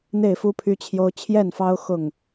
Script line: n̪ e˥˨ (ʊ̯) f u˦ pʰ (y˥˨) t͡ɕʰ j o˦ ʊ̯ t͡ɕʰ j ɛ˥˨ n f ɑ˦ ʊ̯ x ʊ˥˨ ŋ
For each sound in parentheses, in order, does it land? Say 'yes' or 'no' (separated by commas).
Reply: no, no